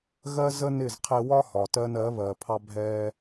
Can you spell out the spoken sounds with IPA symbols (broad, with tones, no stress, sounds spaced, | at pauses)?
ɣ ɜ˦ z ə˦ n ɪ˦˨ z qʰ ɪ˧ w ɒ˦ h ɒ˨ t ɜ˧ n ɜ˨˦ β ɜ˨ pʰ ɑ˧ bʱ ɛ˧